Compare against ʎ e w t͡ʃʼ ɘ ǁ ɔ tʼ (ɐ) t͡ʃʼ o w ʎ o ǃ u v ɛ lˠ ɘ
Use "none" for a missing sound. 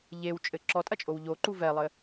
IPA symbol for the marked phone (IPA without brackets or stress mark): ɐ